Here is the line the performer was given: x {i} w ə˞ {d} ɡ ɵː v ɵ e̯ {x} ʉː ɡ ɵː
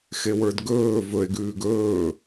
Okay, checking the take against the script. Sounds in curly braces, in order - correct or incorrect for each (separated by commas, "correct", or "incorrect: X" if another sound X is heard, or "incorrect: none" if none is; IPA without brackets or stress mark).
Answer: incorrect: e, correct, incorrect: ɡ